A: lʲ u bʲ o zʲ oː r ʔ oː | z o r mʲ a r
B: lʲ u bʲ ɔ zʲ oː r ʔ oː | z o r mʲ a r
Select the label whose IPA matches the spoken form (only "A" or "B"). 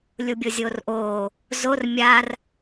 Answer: A